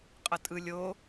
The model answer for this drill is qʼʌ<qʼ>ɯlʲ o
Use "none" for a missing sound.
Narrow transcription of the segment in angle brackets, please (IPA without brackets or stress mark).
tʼ